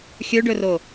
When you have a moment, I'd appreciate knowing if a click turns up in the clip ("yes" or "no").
no